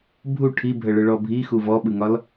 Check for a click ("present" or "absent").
absent